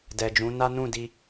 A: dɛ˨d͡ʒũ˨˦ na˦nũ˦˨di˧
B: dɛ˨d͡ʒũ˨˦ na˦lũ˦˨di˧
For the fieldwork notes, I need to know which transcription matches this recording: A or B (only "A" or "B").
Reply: A